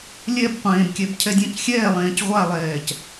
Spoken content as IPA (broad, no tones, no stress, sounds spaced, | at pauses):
lʲ ɛ b qʷ ẽː b kʲ ɛ b cʰ ɛ dʲ ɛ̃ c xʲ ɛː lˠ ẽː c ʁʷ a lˠ ɛː c